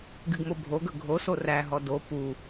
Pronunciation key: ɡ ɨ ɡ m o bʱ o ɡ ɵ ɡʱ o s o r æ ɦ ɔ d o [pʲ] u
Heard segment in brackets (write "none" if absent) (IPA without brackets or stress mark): p